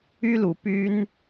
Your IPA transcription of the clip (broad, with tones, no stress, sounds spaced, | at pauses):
y˦ l u˨˦ p y˦ n